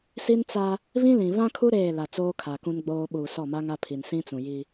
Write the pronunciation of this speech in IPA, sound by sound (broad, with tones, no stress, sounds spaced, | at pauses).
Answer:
s i˦ n t͡s a˦ | β ĩ˦ l ĩ˨ β ã˦ kʰ u˦ ɾ eː˦˨ l a˨ t͡s oː˦ kʰ a˨ k ũ˦ n ɡ͡b oː˦ ɓ uː˨ s ɔ˦˨ m a˦ ŋ a˦ pʰ i˨ n s ĩ˦ t͡s ũ˨ j i˦